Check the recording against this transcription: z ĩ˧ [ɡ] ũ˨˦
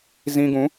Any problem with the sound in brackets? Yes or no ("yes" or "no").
no